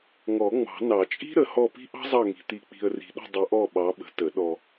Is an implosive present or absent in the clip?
present